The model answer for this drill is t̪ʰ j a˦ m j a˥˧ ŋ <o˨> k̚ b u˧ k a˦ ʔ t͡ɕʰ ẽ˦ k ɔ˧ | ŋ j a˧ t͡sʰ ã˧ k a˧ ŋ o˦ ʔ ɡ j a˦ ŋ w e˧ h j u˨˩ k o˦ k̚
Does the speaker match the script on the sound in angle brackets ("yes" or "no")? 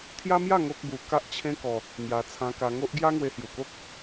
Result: no